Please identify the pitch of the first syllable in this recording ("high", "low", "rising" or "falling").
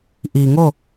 low